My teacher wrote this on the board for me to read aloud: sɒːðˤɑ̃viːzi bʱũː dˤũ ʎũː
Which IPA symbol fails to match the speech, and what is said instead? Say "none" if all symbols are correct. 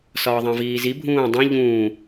none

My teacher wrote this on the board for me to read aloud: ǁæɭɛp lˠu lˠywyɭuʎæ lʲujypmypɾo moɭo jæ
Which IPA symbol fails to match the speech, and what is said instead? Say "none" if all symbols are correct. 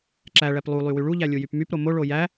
none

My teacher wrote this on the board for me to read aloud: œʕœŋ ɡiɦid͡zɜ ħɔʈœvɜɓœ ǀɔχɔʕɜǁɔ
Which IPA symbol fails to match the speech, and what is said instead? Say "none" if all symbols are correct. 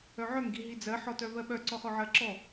ʈ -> t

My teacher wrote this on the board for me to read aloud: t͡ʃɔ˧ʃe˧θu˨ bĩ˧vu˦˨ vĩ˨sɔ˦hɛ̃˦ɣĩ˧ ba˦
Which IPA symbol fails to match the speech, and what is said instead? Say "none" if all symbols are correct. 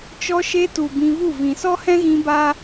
θ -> t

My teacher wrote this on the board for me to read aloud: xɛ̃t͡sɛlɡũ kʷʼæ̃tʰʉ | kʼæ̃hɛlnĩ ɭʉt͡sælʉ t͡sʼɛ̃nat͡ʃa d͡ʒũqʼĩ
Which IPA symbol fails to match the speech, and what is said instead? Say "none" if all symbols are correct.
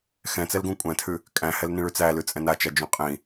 none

